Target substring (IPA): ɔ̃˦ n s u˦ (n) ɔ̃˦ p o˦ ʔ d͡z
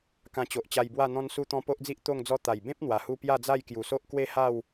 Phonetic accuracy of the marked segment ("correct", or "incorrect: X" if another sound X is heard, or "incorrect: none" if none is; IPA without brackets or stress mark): incorrect: t̪